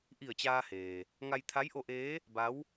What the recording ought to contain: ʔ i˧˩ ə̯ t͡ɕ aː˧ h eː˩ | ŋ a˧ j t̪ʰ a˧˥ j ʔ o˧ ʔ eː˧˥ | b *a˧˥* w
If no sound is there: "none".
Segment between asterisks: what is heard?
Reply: a˧˥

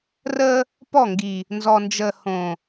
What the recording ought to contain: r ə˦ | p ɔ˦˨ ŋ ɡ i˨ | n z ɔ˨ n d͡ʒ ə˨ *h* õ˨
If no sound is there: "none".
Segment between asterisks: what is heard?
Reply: h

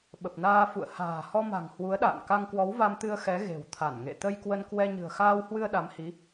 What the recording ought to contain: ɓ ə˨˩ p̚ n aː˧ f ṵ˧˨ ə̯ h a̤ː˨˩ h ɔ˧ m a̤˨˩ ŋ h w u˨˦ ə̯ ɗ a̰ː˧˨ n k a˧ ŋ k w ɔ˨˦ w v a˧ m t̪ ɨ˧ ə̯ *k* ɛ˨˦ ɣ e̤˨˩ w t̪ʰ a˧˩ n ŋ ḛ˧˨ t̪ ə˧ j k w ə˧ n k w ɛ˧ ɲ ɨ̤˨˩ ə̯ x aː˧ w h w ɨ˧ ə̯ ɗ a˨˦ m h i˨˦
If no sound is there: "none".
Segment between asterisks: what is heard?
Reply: x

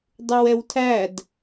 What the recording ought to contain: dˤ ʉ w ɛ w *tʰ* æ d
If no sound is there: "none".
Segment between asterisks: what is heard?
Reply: tʰ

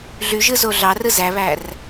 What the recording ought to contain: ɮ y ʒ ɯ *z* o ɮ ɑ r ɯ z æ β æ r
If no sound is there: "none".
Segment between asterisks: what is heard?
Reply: z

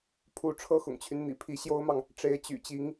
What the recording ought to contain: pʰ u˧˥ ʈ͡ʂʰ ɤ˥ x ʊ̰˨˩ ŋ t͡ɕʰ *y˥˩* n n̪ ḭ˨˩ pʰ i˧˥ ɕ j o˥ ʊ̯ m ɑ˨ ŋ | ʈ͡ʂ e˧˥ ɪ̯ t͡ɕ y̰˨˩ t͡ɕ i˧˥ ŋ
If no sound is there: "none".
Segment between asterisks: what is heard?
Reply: y˦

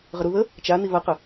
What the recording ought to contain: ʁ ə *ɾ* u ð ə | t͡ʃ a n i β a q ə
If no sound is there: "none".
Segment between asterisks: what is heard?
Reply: ɾ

